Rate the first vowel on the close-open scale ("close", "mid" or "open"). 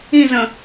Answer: close